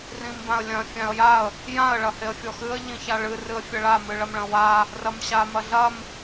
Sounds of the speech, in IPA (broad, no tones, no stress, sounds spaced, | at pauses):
r ĩ m b ã ə̯ lʲ ɐ̃ fʲ ã ə̯ j a ə̯ | j ã ə̯ ɭ ɐ h e ə̯ fʲ ɔ x ɨ ə̯ ʎ ĩ ç a ɭ ɨ r ɨ ə̯ fʲ ɐ ɭ a m ɨ ɭ ɐ m ɭ ɐ̃ w a | r ɐ m ɕ a m ɐ ɮ ɐ m